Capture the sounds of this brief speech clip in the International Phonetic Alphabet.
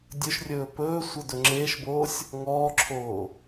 dʲɵʃrʲɵː pɵː sʷɤdɵŋ͡ǁeːʃboːsʲ | ŋɔːǁʰoː

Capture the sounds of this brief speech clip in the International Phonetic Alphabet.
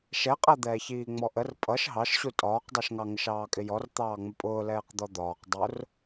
ʃɛqʼæd̪ɛːç iːŋ͡mɔʔər pʼʌʃ ɦɑʃɕu tʼɒːqdˤɜʃŋɑŋəʃ ɑːkʼɪjɔr t̪ɑːŋ͡məpʼʊː lɛːqd̪ɔd̪ɒːq dˤʊr

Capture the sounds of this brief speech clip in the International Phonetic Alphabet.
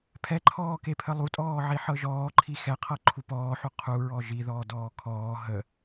pʰɛǃʰɔːkepʰə lˠutʼɔːʕiħɤ ʒɔːǃʰi xɛqʰɤǃʰu pɔːħu qʰuɹɔ ʒiðɔːdɔː kʰɔː ɦə

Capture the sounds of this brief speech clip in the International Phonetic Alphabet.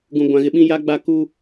ɡũ˦ɡʷã˦ɣɪ˦ ɓĩ˦ja˦ ɡ͡ba˦ ku˦

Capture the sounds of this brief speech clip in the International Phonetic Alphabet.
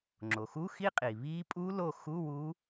ŋ͡ǁo˩xu˧˥˧xi˦˥qʼi˩ βi˦˥ pʼu˦˥lo˦˨xu˧˥˧ wu˦˥

